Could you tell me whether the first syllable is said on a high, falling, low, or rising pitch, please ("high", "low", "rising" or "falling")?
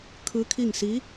rising